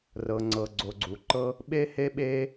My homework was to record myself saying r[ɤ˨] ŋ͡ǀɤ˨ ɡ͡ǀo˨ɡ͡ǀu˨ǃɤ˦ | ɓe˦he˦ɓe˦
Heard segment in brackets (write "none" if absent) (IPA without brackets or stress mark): ɤ˨